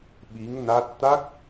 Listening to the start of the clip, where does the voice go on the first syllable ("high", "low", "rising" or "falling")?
rising